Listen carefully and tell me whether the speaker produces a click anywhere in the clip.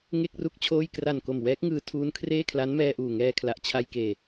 no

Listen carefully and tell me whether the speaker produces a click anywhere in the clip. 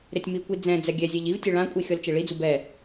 no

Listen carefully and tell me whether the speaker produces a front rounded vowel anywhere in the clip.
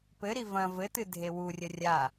no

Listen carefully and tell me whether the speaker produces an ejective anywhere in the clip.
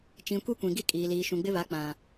yes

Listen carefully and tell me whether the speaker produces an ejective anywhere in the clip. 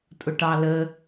yes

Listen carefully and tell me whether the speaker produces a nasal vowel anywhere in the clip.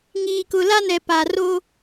no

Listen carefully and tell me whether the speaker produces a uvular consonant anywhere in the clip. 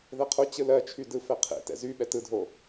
yes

